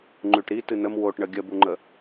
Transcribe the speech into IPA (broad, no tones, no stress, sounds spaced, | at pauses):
ŋ͡ǃ ʉ ʈ ɾ i t ɨ n ə m w o ʈ ɳ ə ɡʲ ə b u ŋ͡ǃ ə